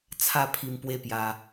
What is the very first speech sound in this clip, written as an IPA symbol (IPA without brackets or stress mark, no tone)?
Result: t͡sʰ